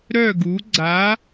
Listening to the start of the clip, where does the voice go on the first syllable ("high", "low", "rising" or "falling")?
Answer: falling